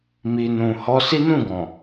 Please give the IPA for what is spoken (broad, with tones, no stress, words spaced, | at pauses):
mi˨ nũ˨hɔ˧ si˦nũ˦˨ɡɔ̃˨